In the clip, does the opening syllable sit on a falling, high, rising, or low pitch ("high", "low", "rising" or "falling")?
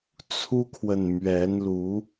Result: high